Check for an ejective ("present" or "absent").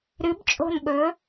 present